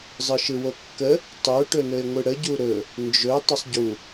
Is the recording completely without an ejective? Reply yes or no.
yes